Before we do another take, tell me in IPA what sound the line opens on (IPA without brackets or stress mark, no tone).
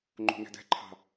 ŋ͡ǃ